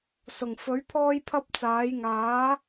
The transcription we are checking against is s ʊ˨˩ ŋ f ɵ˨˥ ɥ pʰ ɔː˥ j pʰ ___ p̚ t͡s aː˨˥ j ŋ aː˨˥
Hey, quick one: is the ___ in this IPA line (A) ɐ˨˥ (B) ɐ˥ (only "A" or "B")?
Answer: B